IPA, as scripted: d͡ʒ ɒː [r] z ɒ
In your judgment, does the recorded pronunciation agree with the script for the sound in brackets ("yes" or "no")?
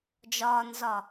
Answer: no